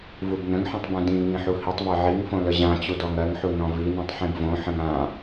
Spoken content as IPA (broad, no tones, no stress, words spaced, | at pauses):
vubnə̃ŋħĩtˤ bũdĩŋĩ ħuhitˤvɜ ʕiŋ fõləʑãt͡ɕu dɔŋɜŋħu nɔ̃vinĩtˤ ħĩbvõħə̃ŋ ã